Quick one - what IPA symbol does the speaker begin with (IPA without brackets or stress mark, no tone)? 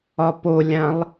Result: ɒ